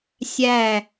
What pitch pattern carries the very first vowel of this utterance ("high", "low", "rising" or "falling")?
falling